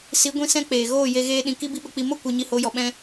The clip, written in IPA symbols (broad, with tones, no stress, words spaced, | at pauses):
si˨˦ɡʷĩ˧ sɛ̃˦k͡peː˨ ɣoː˦˨je˧ ɣeː˦ɗĩ˧ ki˦bi˦ɓə˧k͡pi˧ mo˦ kʷe˧ ɲi˧ho˨˦jɔ˨ ɓɛ̃˧